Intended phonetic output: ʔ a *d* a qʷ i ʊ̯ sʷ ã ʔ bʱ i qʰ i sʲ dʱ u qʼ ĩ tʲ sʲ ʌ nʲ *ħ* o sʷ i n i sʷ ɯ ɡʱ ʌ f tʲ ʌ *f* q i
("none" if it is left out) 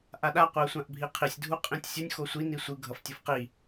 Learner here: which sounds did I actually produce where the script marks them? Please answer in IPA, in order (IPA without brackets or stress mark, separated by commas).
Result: ɗ, x, f